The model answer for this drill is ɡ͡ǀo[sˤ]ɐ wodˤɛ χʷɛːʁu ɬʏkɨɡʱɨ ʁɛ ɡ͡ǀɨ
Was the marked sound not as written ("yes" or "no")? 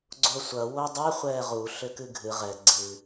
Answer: yes